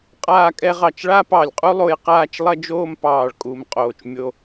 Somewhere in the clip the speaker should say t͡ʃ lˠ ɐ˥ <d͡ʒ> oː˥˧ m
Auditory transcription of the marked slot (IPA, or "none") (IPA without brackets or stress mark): d͡ʒ